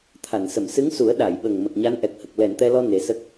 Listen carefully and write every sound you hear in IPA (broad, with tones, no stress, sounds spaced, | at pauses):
t̪ʰ a˨˩˨ n s ə˨˩˨ m s ɨ˧˥ ŋ s u˨˩˦ ə̯ ɗ a˨˩˨ j ɓ ə˨˩ ŋ m ə˨˩ k̚ ɲ a˧˥ n ʔ ɛ˨˩ k̚ h ə˨˩ k̚ l ɛ˨˩˨ n t̪ ɛ˧ l ɔ˧ n e˨˩˦ s ə˦˥ k̚